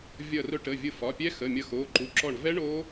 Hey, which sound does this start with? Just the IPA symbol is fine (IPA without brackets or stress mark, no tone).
vʲ